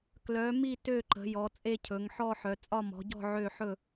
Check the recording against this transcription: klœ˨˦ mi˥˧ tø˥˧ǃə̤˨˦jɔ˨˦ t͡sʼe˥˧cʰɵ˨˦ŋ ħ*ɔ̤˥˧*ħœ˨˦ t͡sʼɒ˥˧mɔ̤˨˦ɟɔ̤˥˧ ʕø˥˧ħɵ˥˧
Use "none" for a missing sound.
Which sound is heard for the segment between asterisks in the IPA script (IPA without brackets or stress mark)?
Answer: ɔ˥˧